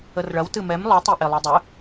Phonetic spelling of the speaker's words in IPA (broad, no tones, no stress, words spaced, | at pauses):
ərɭɐw tɨmɛm lˠɨ tˤiʔelˠʉdˤɨ